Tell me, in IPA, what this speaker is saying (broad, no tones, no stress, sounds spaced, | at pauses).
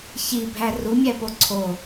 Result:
ç i bʱ æ r u mʲ æ p o ǀʰ o